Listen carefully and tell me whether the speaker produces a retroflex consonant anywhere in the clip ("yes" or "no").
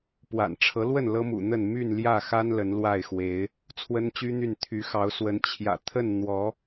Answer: yes